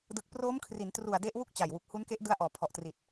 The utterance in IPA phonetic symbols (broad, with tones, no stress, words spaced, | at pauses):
dɯ˨˩k̚proː˦˥mkʰri˩˦ntru˨˩a̯ de˦˥ʔwu˥˩k̚t͡ɕa˨˩jwu˨˩k̚ hu˦˥nke˦˥ʔdɯ˦˥a̯ʔɔː˩˦ pʰɔ˨˩ʔtri˨˩t̚